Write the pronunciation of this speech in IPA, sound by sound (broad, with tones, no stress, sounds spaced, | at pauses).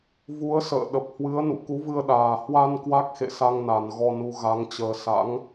v u˨˦ ə̯ s ə̰ː˧˨ ɗ ə˨˩ p̚ h w ɨ˨˦ ə̯ n ṵ˧˨ k u˨˦ v ɨ˧ ə̯ ɗ aː˨˩ h w a˧ n k w a˦˥ k̚ x ḛ˧˨ s a˧ ŋ n a˨˩ n ɣ ɔ˧ n u˧ ɣ a˨˦ ŋ t͡ɕ əː˧ s a̰˧˥ ŋ